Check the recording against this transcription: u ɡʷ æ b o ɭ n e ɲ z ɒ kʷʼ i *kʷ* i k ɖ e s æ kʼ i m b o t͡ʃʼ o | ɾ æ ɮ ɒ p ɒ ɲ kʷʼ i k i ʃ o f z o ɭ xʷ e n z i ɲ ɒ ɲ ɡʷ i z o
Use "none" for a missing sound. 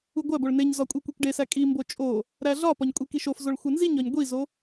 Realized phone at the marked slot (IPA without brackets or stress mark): kʷ